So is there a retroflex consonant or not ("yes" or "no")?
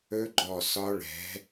yes